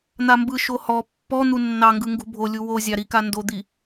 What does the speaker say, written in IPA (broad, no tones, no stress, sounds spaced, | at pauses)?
n̪ a m b ɯ ʃ o h ɔ pː ɔ n̪ u nː ɑ ŋ ɡ ɯ ŋ ɡ ṳ bʱ o lʲ u w o zʲ ɑ ɾ i k a n d o d̪ i